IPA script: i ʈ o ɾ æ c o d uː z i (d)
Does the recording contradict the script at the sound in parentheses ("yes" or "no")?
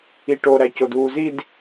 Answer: no